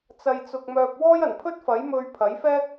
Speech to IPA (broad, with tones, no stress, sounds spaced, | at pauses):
t͡s ɐ˧ j t͡s ʊ˧ k̚ m œː˧ p̚ w ɔː˥ j ɐ˨˩ n pʰ ɵ˥ t̚ f ɐ˨˥ j m ɵ˧ ɥ pʰ ɐ˨˥ j f ɛː˥ k̚